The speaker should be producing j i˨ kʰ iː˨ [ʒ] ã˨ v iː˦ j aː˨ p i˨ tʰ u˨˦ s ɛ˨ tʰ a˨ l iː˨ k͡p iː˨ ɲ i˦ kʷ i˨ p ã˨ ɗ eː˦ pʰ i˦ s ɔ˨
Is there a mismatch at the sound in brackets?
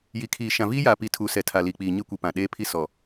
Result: yes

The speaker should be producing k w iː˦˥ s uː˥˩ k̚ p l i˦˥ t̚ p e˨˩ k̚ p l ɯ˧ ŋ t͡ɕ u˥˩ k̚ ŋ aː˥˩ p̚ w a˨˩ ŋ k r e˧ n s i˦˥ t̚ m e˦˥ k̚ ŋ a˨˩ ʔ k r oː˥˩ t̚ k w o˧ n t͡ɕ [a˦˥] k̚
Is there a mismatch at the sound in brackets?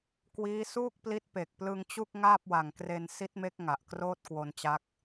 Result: no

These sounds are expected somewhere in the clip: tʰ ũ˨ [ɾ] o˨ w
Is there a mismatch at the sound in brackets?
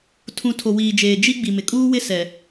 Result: yes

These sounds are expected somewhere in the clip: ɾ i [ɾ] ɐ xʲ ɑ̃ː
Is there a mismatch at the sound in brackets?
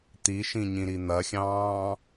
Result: yes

